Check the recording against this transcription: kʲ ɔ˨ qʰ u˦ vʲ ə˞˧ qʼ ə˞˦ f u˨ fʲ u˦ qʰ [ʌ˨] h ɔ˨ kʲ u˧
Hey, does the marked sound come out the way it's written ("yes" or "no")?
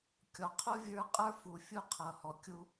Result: yes